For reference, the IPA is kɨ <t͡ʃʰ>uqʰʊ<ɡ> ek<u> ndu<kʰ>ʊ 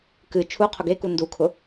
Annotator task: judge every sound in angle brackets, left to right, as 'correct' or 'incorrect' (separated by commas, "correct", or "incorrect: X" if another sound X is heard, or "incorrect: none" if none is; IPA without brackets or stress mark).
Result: correct, correct, correct, correct